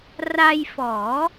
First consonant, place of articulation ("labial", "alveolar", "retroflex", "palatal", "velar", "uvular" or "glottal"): alveolar